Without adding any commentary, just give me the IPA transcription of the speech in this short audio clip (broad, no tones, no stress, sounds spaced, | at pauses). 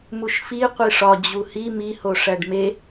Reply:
m u ʃ f i qʷ i ʂ ɒ d͡ʑ u h i m i h o ʂ æ ɖ m e